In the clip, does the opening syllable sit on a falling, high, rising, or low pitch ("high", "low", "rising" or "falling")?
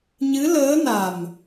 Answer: rising